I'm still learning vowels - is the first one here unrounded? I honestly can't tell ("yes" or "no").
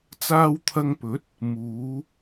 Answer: yes